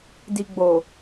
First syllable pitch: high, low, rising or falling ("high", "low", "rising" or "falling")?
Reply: low